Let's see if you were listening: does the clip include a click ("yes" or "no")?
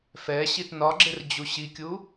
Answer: yes